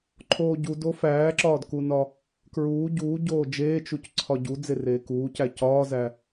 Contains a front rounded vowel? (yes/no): no